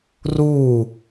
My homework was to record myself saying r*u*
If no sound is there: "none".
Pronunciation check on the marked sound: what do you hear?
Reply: u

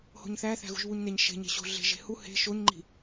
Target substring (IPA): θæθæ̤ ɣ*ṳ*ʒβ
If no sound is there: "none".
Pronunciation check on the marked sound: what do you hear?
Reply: ṳ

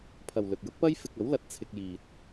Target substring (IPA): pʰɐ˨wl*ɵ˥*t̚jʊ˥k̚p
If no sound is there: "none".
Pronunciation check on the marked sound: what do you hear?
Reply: ɵ˨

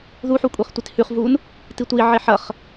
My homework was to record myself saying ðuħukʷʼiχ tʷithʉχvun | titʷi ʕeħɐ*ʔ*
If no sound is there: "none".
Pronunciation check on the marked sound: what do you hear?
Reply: χ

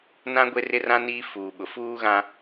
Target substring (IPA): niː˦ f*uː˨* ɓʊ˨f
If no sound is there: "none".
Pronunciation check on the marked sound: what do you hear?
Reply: uː˨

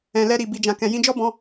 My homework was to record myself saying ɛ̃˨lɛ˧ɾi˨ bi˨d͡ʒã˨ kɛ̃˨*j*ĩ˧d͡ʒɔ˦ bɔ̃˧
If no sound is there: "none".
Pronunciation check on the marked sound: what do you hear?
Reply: j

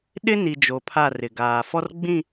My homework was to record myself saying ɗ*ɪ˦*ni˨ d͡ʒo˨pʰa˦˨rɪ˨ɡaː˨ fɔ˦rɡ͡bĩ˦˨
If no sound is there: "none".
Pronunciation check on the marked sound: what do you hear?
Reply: ɪ˦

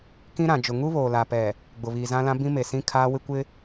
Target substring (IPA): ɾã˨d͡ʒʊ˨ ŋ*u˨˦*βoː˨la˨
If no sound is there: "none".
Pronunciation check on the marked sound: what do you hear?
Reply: u˦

